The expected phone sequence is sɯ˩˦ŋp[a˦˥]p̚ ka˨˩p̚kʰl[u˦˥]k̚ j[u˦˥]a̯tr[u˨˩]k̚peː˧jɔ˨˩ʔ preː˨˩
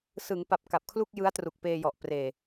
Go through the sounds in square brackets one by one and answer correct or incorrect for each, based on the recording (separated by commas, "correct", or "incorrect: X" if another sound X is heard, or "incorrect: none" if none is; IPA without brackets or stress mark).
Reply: incorrect: a˨˩, incorrect: u˥˩, incorrect: ɯ˦˥, correct